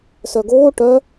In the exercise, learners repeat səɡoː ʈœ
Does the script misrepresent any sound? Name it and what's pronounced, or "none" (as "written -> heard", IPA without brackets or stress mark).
ə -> œ